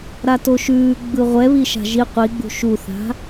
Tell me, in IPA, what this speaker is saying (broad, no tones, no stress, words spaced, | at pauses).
ɾatoʃʉː ɡ͡bɯʁʷɛβiʃa̤ ʒi qʷiɡ͡bṳ ʃuθa̤